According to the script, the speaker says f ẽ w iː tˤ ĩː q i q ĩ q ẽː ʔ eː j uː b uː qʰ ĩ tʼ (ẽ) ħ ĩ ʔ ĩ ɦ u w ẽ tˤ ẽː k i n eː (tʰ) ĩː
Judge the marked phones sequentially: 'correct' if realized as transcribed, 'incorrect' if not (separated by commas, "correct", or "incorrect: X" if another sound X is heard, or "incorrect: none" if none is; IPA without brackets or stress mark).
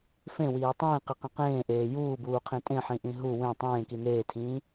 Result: correct, correct